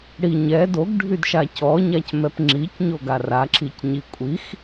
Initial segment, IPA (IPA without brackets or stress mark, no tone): ɽ